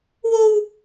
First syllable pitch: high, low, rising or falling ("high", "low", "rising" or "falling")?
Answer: high